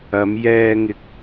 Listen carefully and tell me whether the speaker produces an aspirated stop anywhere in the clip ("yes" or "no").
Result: no